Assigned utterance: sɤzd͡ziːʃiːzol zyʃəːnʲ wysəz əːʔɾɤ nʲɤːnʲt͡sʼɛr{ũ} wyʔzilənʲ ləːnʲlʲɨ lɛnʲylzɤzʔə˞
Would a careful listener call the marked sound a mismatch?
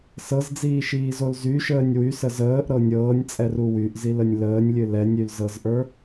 yes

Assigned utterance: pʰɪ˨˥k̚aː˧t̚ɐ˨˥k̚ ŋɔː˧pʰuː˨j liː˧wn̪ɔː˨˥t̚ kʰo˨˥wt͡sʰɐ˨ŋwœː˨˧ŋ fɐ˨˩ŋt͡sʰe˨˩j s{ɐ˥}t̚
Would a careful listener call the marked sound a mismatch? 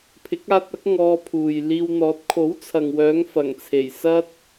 no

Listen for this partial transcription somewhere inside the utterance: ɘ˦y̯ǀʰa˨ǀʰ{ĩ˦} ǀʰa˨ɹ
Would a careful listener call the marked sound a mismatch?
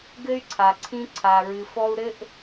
no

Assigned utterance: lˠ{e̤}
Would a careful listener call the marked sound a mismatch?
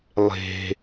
no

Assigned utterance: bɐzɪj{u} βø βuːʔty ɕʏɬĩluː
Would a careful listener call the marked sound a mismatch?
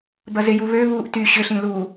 no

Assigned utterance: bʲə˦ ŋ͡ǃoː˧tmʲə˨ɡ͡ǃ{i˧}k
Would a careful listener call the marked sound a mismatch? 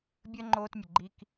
no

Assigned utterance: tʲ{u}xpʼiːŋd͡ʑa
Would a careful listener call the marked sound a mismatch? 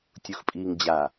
no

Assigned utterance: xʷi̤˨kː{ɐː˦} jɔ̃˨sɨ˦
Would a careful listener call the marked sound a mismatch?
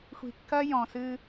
no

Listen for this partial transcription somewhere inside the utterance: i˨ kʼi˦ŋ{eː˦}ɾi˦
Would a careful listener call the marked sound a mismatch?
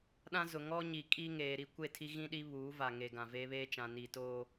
yes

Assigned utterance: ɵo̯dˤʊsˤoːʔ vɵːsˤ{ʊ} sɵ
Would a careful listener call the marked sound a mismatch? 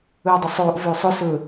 no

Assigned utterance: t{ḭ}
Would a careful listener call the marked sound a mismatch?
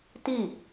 yes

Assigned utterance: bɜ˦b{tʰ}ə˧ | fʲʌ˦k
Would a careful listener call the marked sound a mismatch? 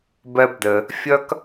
yes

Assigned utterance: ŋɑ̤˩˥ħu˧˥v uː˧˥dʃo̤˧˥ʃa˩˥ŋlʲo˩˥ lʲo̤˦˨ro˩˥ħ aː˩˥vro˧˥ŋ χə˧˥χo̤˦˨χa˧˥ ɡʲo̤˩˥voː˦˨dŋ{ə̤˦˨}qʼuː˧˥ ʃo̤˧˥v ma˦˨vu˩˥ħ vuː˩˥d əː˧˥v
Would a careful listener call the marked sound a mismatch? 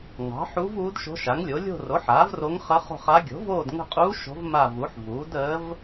no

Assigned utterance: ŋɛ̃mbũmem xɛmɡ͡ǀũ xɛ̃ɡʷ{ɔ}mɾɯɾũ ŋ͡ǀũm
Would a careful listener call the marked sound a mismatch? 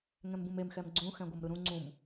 yes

